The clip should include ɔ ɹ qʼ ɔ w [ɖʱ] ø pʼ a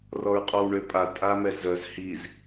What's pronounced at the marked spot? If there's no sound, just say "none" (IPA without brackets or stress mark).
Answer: ɳ